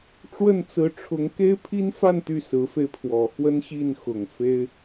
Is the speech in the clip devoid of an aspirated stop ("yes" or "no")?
no